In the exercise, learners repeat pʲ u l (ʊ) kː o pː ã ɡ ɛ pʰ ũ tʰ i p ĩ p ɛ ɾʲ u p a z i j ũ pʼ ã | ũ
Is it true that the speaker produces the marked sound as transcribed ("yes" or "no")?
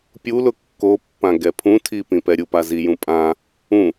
yes